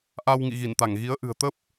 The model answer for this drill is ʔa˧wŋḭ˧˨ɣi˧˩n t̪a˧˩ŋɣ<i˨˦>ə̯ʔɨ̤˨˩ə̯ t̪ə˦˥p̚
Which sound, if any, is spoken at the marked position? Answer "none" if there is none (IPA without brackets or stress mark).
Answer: i˨˦